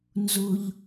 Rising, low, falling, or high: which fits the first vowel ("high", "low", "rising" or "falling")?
high